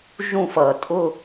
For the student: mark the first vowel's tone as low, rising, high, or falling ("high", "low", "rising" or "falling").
falling